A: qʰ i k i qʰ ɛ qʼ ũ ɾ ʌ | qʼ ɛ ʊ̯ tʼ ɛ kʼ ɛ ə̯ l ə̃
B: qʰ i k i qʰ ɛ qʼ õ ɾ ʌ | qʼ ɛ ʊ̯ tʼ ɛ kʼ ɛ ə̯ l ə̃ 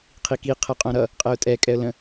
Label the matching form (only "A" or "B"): B